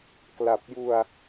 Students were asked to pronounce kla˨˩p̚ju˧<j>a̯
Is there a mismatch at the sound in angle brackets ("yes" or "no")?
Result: yes